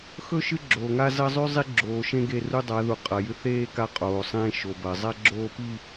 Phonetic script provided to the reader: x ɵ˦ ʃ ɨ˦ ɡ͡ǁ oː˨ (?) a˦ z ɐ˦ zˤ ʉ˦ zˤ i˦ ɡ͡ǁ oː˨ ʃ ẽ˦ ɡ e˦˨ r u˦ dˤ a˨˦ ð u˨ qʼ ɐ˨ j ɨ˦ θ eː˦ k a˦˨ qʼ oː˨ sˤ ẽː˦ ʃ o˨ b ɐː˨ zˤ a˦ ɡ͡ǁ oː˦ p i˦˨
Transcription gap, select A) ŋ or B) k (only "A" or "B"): A